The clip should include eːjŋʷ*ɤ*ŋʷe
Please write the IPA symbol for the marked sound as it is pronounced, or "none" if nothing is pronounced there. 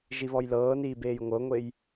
ɤ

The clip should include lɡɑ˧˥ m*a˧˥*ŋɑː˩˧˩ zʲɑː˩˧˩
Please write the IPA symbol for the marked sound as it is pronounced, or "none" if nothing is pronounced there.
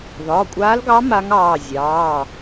a˧˥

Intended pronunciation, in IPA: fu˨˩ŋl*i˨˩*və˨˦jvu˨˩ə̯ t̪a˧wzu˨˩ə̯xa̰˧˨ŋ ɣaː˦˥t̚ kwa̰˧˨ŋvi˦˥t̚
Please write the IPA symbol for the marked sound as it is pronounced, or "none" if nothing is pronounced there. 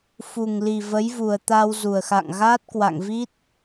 i˨˩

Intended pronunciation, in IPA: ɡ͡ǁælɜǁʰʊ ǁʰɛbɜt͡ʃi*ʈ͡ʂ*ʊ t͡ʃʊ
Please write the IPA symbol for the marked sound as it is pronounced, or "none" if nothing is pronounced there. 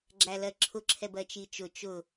t͡ʃ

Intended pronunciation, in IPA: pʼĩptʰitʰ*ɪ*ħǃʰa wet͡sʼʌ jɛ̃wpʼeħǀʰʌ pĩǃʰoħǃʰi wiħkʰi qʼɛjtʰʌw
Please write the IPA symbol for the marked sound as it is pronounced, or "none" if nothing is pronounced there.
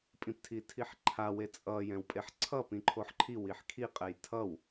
i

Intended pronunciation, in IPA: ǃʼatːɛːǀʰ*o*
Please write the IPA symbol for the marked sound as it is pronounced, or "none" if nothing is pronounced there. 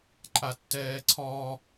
ɔ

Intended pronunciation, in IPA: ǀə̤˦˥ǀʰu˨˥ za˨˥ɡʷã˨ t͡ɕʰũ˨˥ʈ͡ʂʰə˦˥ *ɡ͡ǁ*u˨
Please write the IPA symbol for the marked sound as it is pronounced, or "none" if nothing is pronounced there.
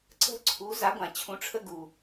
ɡ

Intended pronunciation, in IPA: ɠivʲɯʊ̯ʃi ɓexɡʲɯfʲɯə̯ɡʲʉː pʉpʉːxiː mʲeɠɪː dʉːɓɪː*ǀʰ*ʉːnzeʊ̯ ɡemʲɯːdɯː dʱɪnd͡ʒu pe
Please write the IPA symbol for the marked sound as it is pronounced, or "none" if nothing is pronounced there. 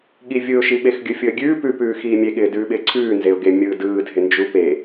ǀʰ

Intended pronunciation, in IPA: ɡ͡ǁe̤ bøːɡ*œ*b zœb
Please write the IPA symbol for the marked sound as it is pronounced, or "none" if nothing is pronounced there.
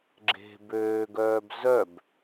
œː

